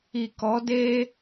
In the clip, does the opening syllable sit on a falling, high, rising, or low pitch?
low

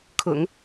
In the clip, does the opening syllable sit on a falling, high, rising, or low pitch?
low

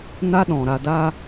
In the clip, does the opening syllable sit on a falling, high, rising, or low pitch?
high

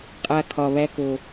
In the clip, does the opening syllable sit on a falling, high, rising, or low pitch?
low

